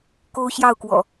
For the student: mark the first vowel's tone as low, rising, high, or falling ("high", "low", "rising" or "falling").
high